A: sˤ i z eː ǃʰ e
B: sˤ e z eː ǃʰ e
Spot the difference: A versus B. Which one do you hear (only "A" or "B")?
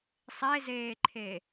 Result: B